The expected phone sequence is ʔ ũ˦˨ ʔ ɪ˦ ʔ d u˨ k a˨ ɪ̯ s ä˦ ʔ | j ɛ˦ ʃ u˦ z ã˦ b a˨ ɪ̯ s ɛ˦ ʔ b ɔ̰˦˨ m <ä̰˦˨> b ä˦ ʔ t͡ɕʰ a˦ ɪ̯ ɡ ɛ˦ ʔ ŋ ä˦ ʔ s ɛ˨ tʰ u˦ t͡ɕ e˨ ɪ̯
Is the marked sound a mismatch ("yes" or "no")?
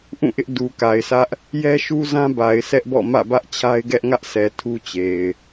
no